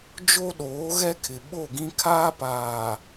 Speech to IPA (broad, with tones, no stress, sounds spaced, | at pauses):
d͡ʒ o˦ ɗ oː˨˦ ɣ ɛ˦ kʰ ɪ˨ ɓ o˦˨ ɡ ĩ˦ kʰ aː˦ p aː˨